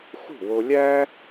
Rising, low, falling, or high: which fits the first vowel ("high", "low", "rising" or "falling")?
falling